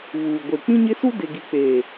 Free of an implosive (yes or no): yes